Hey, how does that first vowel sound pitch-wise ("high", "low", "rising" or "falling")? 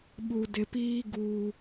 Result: low